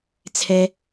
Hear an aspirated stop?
yes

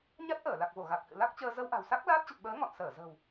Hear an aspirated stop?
no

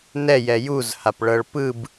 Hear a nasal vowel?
no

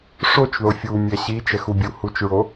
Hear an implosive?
no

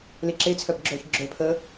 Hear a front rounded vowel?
yes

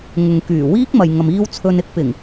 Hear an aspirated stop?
yes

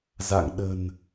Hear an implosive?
yes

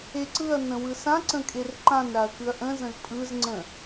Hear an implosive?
no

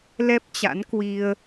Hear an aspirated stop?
no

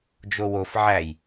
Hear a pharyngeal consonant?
yes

